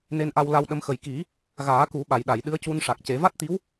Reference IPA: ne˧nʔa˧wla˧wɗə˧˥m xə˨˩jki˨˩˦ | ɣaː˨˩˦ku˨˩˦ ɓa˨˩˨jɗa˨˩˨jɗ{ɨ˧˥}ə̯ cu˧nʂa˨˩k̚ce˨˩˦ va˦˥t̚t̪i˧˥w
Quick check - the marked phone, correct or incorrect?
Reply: correct